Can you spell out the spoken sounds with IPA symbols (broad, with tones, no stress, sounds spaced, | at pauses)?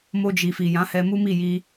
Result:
m o˧ d͡ʒ i˨ f i˨ j ã˨˦ h ɛ˧ m u˦ m i˦˨ j i˧